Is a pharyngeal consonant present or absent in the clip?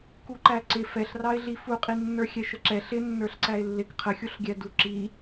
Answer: absent